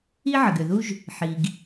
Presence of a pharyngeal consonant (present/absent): present